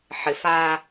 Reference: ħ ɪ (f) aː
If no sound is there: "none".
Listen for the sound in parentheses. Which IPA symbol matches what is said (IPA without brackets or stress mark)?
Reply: f